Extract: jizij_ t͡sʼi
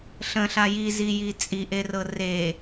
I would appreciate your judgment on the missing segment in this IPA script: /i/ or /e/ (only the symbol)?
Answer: i